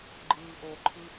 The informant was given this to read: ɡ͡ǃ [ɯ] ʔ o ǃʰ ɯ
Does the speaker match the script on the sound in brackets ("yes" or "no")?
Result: no